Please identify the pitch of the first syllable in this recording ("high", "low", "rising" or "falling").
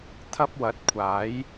high